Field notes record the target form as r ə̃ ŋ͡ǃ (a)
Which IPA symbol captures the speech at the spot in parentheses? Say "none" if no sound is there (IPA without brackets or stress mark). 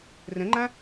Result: ã